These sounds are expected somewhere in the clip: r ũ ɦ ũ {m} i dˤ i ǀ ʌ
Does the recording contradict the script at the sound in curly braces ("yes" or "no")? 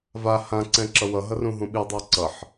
yes